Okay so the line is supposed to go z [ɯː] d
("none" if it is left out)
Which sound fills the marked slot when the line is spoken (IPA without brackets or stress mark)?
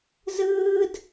ɯː